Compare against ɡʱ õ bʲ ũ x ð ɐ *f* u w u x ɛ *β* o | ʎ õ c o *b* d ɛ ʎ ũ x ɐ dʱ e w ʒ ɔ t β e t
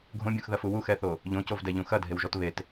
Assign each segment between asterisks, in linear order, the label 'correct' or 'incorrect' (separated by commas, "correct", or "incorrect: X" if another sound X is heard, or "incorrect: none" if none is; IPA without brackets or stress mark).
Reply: correct, incorrect: θ, incorrect: v